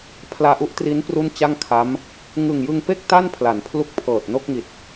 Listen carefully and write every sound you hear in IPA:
pʰ l aː˧ ʔ u˦˥ ʔ t r i˦˥ n p r u˥˩ n t͡ɕ a˥˩ ŋ kʰ a˦˥ m | ŋ ɯ˨˩ ŋ j ɯ˧ ŋ p e˥˩ k̚ t a˥˩ n pʰ l a˩˦ n pʰ l u˦˥ k̚ pʰ ɤː˨˩ t̚ n o˥˩ k̚ ŋ i˨˩ t̚

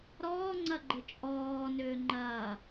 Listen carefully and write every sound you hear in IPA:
ɾ ɔː ŋ͡ǀ ɐ ɡ͡ǃ ɘ t͡ʃʼ ɔː n ʏː ŋ͡ǃ ɐː

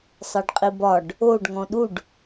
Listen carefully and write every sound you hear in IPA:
sˤ ɛ ɖ qʼ i b ɒ ɖ | o ɖ ŋ ɔ̃ ɗ u ɖ

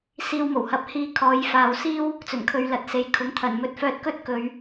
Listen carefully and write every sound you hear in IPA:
s iː˧ w m o˨˩ w h ɐ˨˥ p̚ h iː˧ kʰ ɔː˨˧ j f aː˨ w s iː˥ w | t͡s ɵ˨˩ n kʰ ɵ˨˧ ɥ l ɐ˨˥ t̚ s e˨ j kʰ ʊ˨˥ ŋ t̪ʰ ɐ˨˩ n m ɵ˧ t̚ f œː˧ t̚ k ɵ˥ t̚ k ɵ˨˧ ɥ

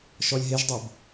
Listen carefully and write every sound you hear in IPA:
ʃ ɔ lʲ ɦ e ʒ dˤ o b

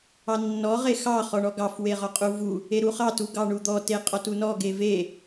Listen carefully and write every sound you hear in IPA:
ɑ nː ɔ ʁ e x ɑ χ ɔ ɳ ɔ ɡ ɑ f w e ʁ ɔ qʼ u v u | e ɾ u χ ɑ t u ɡ ɑ ɳ u d̪ ɔ t e qʼ ɔ t u n ɔ ɡ e v e

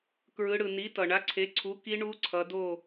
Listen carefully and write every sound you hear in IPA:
k ɹ ɯ˩˧ ɽ ɯ˩ n i˩˥ t ʌ˩ ɳ a˩˥ ǀʰ e˩˥ ǀʰ u˩˥ k i˧˥ ɳ u˧˥ ǀʰ ʌ˩˧ d o˦˨

